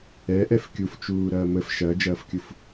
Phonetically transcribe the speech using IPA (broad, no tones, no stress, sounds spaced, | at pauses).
ɛ ʔ ɛ f kʲ u f t͡ʃ uː ɾ ɐː m ə f ʃ ɐː d͡ʒ ɐː f kʲ u f